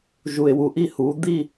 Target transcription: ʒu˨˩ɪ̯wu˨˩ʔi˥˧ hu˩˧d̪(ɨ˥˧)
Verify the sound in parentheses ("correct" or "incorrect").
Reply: incorrect